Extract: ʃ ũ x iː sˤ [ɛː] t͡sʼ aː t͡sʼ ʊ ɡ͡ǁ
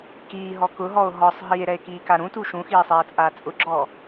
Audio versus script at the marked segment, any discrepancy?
no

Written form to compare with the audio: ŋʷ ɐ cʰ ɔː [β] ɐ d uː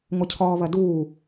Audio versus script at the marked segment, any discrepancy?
no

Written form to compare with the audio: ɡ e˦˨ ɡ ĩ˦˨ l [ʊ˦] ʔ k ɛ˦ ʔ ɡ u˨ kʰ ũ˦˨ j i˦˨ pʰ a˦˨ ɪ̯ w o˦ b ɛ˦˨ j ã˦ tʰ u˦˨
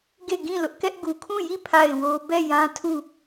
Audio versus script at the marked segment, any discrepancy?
no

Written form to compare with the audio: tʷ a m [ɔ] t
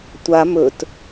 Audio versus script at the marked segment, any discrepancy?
yes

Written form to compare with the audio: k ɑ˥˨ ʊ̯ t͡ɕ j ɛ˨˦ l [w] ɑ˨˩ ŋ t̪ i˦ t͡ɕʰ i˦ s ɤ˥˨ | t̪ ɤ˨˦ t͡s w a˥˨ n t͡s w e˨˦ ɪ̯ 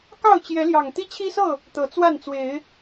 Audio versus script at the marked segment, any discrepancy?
yes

